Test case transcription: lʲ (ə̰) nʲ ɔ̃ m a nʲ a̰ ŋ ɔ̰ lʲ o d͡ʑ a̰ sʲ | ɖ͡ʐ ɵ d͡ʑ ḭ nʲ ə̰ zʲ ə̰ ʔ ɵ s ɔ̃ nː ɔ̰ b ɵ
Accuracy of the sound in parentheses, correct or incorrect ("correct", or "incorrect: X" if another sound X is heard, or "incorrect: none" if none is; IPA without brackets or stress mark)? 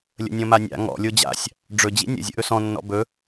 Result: correct